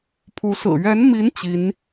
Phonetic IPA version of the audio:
pʰ u˧˥ s ɹ̩˨˩ ɥ ɛ˧˥ n m i˧˥ n t͡ɕ i˧˥ n

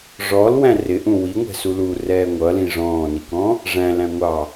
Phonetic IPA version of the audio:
ʐ ɔ l w æ̃ r ɪ ʔ ũ w i ŋʷ ɛ̤ s u l u r ɛː ŋʷ ʌ l ĩ ʐ ɔ̃ː n i k ɔ̃ | ʐ æ̃ l æ̃ ŋʷ ɑ

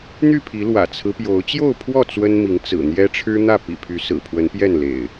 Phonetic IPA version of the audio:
n̪ y˥˨ pʰ i˨˦ l w ä̰˨˩ t͡sʰ ɹ̩˦ p j o˨˦ ʊ̯ t͡ɕ j o˥˨ ʊ̯ pʰ w ɔ˥˨ t͡s w ə˦ n m i˨˦ ŋ t͡s ɹ̩˨˩ n̪ j ɛ˦ ʈ͡ʂʰ ɻ̩˦ n̪ ä˥˨ p ḭ˨˩ pʰ y˨˦ s ɹ̩˨˩ pʰ w ə˨˦ n p j ɛ˥˨ n l ḛ˨˩ ɪ̯

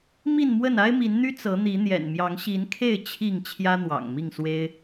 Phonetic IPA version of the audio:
m i˥˨ n m w ə˥˨ n a˦ ɪ̯ m i˨˦ n n̪ y˦ t͡s ɤ˨˦ n̪ i˨˦ n̪ j ɛ̰˨˩ n m j ɑ˨˦ ŋ ɕ i˨˦ n kʰ e˥˨ ɪ̯ t͡ɕʰ i˥˨ ŋ t͡ɕʰ j ä˦ n̪ w ɑ̰˨˩ ŋ m i˥˨ ŋ s w e˦ ɪ̯

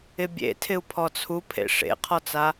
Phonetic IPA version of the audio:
ɪ bʲ ḛ tʰ ɪ u̯ pʰ ɔ t͡sʰ u pʰ ḛ ʂ ḛ qʰ ɔ t͡s a

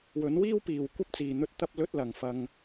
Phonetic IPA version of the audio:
w ɵ˨˥ n w iː˥ w p iː˨ w kʷ ɐ˥ p̚ t͡s iː˨ n̪ ɵ˥ t̚ t̪ ɐ˥ p̚ l ɵ˥ t̚ l ɐ˨ ŋ f ɐ˧ ŋ

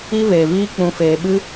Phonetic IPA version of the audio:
i˧ v eː˨ v iː˧ k͡p ũ˧ f eː˧ ɓ ɨ˦

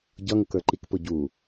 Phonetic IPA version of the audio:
ɟ ʌ ŋ ʊ k ə˞ ǃ i k p ʊ ɟ u

